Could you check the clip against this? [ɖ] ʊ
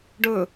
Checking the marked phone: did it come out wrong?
no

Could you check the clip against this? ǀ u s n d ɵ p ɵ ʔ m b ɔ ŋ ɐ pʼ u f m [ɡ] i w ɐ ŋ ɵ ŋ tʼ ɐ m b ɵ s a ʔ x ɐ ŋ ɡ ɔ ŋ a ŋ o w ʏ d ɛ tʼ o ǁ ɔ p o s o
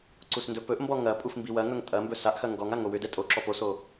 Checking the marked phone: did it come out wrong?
yes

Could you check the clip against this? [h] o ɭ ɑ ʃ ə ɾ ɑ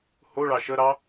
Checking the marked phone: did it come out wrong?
no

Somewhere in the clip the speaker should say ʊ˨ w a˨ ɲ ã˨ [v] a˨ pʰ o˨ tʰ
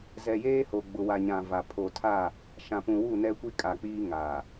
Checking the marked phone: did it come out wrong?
no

